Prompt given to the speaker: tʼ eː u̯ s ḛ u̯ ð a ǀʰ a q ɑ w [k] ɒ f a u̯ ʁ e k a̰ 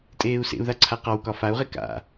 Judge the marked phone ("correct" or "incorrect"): correct